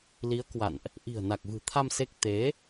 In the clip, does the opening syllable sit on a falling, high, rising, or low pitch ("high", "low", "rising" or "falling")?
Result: rising